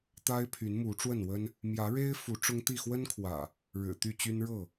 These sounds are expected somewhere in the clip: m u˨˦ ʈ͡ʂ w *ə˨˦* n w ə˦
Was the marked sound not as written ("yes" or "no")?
yes